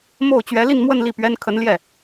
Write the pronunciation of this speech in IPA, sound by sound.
m o˥˩ ʊ̯ t͡ɕ ɥ ɛ˧˥ l i˥˧ n m w ə˥˧ n l i˥˩ p ɥ ɛ˥ n kʰ ə˧˥ n l j ɛ˥˩

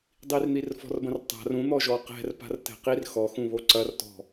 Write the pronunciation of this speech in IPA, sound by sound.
dˤ i r n̪ i r f ɔ̤ r b ɐ̃ r tˤ a̤ r ũ n̪ ɔ ʒ ɔ q ɛ̤ r p a̤ r t ɛ̤ q i r x ɔ x ũ β o ǀ ɐ r t ɔ̤

